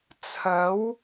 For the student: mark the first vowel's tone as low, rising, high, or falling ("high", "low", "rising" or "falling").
rising